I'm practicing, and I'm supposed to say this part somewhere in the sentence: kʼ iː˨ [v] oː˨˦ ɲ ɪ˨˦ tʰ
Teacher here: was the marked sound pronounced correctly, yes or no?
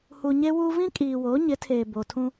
no